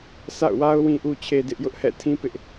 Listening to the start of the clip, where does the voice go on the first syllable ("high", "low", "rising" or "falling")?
falling